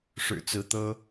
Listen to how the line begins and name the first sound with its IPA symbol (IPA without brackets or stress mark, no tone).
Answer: ʂ